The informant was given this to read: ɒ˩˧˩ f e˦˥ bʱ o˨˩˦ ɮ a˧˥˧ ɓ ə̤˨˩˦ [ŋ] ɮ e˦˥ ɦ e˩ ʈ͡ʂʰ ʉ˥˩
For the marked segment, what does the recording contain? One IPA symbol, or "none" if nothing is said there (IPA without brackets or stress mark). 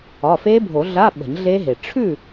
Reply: ɲ